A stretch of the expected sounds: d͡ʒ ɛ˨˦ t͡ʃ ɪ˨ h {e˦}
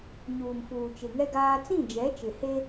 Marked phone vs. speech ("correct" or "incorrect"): correct